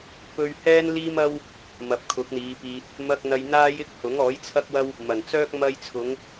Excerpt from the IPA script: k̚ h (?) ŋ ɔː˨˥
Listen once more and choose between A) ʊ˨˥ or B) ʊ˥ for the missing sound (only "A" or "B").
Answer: A